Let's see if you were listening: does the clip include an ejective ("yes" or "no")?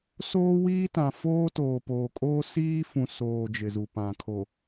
yes